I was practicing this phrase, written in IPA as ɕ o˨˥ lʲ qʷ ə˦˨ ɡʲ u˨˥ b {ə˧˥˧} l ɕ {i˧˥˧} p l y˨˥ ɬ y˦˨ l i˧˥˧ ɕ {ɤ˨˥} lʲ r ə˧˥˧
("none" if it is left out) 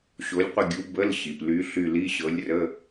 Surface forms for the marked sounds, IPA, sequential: ə˧˥˧, i˩, ɤ˨˥

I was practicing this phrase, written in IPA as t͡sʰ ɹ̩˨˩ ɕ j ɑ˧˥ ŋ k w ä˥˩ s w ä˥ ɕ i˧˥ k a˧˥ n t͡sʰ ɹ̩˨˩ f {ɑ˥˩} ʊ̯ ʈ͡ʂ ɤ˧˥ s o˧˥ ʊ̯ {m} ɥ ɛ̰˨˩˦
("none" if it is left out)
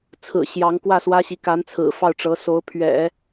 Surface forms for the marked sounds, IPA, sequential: ɑ˥˩, pʰ

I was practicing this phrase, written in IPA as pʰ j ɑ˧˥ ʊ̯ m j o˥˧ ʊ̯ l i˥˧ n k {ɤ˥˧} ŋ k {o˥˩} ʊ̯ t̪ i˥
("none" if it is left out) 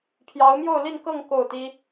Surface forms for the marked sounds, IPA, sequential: ɤ˥˧, o˥˩

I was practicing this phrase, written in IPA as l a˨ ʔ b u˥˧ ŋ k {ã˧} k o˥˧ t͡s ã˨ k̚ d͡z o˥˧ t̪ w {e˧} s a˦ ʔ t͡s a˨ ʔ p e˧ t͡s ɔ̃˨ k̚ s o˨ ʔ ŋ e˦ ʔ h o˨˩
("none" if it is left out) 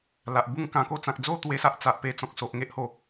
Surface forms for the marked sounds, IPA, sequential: ã˧, e˦

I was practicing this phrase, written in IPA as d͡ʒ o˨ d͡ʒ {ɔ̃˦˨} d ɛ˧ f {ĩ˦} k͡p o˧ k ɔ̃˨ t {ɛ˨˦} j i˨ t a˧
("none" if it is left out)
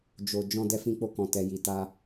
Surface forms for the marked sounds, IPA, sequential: ɔ̃˧, ĩ˧, ɛ˨

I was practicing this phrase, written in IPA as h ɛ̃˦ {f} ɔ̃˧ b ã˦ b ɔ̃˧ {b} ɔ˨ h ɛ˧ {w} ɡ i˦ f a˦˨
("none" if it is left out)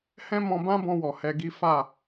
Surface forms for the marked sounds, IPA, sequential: m, w, none

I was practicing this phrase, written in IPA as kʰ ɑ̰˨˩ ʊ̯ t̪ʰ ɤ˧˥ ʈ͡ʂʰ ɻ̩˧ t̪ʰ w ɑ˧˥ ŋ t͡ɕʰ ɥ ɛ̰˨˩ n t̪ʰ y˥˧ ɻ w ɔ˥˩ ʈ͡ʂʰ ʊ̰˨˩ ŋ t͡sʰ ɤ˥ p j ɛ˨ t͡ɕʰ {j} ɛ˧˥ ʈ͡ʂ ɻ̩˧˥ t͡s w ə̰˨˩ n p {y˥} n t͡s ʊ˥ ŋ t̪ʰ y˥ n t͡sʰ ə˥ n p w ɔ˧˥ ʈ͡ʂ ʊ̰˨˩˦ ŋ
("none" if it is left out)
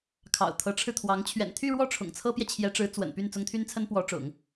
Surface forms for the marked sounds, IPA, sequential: j, y˥˩

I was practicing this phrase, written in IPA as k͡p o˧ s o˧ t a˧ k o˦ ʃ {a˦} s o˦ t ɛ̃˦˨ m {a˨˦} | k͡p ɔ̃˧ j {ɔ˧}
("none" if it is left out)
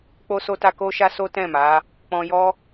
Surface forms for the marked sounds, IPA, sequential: a˦, a˨˦, ɔ˦

